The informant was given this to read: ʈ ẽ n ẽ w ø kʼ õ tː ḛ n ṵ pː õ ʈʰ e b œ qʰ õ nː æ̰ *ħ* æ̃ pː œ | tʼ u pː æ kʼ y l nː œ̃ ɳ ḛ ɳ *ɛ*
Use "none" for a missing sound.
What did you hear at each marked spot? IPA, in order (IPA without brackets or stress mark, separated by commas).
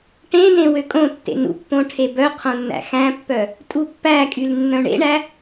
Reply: x, æ